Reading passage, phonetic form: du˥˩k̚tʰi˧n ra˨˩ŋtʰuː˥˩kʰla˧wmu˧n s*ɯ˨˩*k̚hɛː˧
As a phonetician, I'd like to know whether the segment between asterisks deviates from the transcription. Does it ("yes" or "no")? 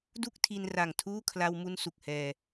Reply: yes